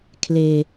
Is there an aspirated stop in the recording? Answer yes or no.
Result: yes